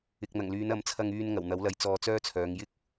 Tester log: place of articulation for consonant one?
velar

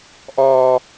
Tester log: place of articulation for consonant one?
glottal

